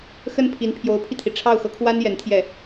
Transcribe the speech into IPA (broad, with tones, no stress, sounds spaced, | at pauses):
x ə˥ n pʰ i˧˥ n pʰ j o˧˥ ʊ̯ pʰ i˧ t̪ʰ i˩ ʈ͡ʂʰ ɑ˥˩ ʊ̯ x ɤ˥ kʰ w a˥ n j ɛ˧˥ n t̪ʰ j ɛ˥˩